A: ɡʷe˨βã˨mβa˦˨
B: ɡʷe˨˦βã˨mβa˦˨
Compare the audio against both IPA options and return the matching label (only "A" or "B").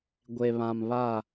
A